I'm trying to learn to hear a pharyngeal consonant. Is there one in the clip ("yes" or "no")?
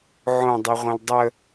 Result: yes